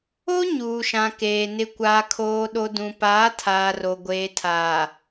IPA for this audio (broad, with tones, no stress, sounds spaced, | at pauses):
o˦ ɲ uː˨ ʃ ã˨ k eː˨ n ɪ˨ kʷ aː˨ kʰ oː˨ ɗ o˨ d ũ˨ p aː˨˦ tʰ aː˨ r o˨ ɡʷ eː˨ tʰ a˨